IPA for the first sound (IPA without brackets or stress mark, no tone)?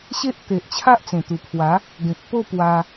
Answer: ɕ